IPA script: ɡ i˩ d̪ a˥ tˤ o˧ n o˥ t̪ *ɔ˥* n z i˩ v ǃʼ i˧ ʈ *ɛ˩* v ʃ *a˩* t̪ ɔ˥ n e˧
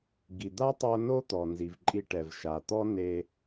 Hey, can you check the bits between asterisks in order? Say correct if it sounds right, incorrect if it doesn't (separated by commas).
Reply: incorrect, correct, correct